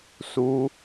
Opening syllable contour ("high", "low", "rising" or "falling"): high